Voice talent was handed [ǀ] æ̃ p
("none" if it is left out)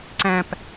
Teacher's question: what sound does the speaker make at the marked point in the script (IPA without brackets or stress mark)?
ǀ